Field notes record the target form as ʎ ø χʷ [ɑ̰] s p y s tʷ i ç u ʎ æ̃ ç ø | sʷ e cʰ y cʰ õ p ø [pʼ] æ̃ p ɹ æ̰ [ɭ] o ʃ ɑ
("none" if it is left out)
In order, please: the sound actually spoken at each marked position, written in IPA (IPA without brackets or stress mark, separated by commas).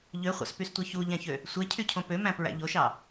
ɑ̰, m, ʎ